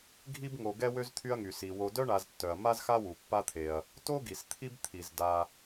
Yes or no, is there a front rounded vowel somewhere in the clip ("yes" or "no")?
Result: yes